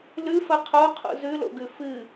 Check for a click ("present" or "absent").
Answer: absent